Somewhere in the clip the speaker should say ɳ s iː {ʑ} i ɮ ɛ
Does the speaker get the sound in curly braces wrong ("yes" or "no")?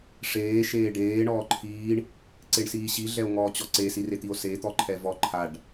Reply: yes